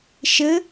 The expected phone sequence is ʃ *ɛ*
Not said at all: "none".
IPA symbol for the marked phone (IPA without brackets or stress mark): ɘ